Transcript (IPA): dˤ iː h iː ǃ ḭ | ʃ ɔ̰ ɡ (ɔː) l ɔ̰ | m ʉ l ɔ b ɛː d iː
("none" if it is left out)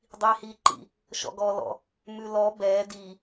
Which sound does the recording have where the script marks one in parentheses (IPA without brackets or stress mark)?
ɔː